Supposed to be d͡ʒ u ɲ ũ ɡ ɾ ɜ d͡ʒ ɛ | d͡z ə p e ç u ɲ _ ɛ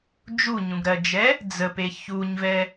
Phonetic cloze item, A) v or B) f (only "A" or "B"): A